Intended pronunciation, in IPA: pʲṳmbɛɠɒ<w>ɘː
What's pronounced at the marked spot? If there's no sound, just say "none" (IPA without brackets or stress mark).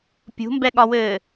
w